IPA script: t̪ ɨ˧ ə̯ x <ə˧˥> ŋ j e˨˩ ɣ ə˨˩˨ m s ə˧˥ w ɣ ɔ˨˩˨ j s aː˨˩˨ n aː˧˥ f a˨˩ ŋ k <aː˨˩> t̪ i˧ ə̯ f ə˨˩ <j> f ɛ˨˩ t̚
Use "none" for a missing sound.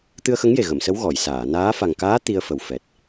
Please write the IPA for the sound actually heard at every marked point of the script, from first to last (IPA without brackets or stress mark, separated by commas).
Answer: ə˧˥, aː˧˥, w